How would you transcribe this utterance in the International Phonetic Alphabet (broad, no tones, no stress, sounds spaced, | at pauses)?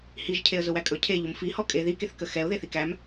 h i ʒ cʰ e ə̯ z ʊ w æ kʼ ɵ cʰ e ʎ ʊ m f i h ɔ kʼ e ð i k e θ k ə x ɛ ʊ̯ ð e θ i k æ m